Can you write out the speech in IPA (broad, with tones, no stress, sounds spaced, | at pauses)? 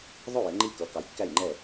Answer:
ðˤ ʊ˥˨ j ɪ˨˥ ŋ͡ǃ i˥˨ k ʌ˨˥ k ɑ˨˥ j kː æ˥˨ j ŋ͡ǃ ɛ˥˨